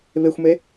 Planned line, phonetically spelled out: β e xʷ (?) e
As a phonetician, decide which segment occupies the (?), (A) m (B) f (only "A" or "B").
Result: A